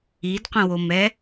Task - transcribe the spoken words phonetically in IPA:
idqʷə̃womɛ

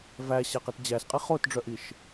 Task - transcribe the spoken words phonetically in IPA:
væɕæqit d͡ʑæsqʼi χotɖ͡ʐœʔiʃ

